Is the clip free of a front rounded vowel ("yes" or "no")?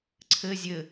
yes